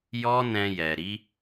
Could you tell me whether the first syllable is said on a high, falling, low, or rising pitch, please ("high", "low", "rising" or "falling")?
high